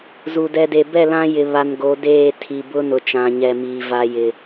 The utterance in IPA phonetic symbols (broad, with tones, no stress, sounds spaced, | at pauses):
z u˨ d ɛ˨ d e˨ b ɛ˦˨ l ã˦ j ɪ˨ β a˨ n ɡ o˨˦ d eː˦˨ tʰ i˨ b ʊ˦ n ʊ˨ t͡ʃ ã˨ ɲ ɛ˨ m iː˨ v a˨ j ɪ˨